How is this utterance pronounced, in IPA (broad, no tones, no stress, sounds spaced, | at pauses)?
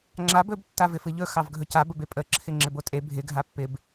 ŋ͡ǁ a b ɵ b tː a v ɪ f ɨ ʎ ɵ x ɑ v ɡʱ ɵ c a b ə b e pʼ ə ǁʰ ɪ ŋ͡ǁ ɪ b o tʼ e bʱ ɪ ɡʱ a pː ɪ b